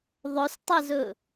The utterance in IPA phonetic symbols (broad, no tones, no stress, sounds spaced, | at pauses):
ðˤ ɵ s tˤ ɛ z ɵ